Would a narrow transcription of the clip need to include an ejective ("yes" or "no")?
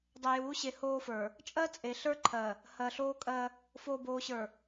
yes